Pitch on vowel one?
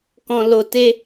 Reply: low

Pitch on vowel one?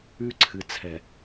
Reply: high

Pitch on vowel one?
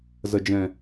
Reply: low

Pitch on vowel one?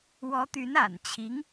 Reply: rising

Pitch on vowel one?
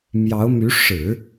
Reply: rising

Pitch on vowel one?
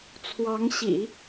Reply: rising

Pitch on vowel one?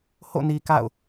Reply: falling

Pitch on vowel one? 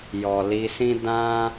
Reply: low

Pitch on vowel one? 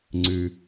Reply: low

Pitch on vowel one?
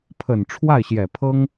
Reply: low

